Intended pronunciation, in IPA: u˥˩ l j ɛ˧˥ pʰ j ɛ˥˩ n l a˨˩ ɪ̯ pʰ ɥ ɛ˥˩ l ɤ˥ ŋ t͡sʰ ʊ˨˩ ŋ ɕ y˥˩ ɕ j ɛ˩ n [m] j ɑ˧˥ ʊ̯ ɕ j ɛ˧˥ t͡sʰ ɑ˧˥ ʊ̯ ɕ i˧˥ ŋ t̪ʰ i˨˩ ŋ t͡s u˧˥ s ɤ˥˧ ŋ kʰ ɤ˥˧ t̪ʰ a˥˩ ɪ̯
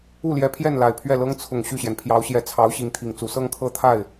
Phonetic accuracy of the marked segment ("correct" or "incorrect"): incorrect